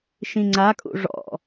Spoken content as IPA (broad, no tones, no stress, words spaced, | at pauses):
ʃĩŋ͡ǀakʼṵ ʐɔ̰